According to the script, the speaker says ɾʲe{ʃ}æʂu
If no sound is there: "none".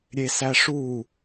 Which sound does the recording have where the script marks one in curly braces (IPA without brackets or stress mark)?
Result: s